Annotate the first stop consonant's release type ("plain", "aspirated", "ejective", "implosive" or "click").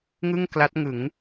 plain